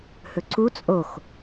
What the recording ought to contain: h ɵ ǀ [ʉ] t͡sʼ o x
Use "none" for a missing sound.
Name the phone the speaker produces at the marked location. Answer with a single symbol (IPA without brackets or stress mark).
u